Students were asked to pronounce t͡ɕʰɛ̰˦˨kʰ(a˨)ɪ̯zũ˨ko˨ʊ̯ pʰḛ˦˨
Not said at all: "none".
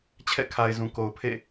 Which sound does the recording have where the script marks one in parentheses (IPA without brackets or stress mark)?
a˨